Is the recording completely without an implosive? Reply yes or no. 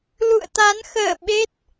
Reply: no